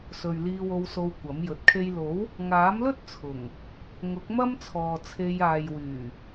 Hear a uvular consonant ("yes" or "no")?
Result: no